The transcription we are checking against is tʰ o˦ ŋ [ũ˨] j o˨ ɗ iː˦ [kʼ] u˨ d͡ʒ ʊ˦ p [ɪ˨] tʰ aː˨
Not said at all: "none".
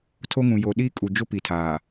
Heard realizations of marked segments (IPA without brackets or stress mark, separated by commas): ũ˨, kʼ, i˨